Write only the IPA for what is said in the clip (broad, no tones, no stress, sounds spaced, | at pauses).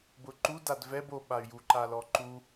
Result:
b ʊ ǃ u d a d v ɛ b o ɓ a y̯ j u ǃ a l ɔ ǃ u